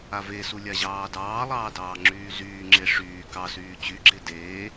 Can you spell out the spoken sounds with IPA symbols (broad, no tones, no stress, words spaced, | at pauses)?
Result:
avesu lʲaʑɑːdɑːlˠɑː dɑːŋ͡ǁyːzyːŋ͡ǁe ʂyː kɑsyː t͡ɕyɡ͡ǁe deː